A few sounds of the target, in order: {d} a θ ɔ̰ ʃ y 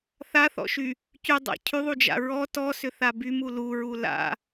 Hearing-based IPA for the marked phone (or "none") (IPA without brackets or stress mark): θ